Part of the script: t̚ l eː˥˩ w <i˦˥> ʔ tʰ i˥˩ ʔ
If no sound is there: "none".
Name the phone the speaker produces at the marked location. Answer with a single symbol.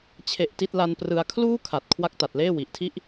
i˨˩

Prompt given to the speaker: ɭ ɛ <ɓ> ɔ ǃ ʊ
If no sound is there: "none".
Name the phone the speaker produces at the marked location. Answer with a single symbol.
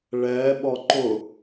ɓ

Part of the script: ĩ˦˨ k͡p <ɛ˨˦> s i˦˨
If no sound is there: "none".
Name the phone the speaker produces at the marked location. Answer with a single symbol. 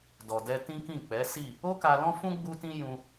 ɛ˨˦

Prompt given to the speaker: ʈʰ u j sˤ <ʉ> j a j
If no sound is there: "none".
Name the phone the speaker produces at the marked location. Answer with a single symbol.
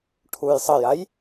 ə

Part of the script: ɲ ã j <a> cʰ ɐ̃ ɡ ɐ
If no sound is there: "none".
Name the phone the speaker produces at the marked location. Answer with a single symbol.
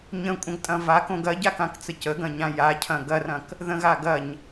a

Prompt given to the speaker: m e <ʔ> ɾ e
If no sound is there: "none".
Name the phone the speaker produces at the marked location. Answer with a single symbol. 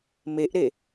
ʔ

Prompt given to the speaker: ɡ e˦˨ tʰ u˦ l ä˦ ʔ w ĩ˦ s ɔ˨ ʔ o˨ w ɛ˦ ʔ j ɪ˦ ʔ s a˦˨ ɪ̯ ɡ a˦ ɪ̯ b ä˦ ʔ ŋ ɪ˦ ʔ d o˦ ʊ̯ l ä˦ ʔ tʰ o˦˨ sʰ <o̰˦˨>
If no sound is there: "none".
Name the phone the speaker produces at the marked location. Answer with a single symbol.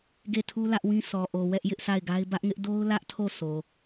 o˨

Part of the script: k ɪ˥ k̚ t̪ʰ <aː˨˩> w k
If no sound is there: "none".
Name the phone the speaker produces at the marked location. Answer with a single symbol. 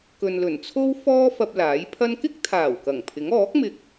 aː˨˩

